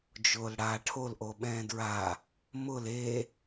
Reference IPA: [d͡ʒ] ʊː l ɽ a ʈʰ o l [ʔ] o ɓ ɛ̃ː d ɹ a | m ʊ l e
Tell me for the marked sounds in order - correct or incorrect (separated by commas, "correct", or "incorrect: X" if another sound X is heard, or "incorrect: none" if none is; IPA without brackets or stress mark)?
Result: correct, correct